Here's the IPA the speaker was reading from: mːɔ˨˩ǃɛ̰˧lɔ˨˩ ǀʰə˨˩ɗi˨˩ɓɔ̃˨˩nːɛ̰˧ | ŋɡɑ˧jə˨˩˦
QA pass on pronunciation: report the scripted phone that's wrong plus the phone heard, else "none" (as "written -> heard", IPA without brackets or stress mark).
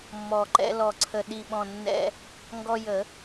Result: ɑ˧ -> ɔ˧